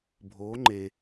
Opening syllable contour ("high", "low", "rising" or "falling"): rising